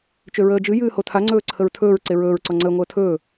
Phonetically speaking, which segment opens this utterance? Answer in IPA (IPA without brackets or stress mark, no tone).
t͡ʃ